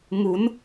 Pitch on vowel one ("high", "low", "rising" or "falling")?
rising